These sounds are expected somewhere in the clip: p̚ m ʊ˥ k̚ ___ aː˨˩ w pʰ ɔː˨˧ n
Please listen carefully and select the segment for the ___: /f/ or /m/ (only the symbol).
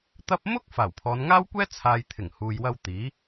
f